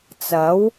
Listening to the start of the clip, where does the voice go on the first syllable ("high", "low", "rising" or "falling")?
rising